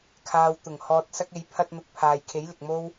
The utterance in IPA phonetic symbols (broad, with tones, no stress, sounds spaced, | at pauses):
kʰ aː˨ w t̪ ʊ˨˩ ŋ h ɔː˨ t̚ s ɐ˧ k̚ e˨˧ j pʰ ɐ˧ t̚ n̪ ʊ˨˥ k̚ pʰ aː˨ j kʰ e˨˥ j l ɪ˨ k̚ m o˥ w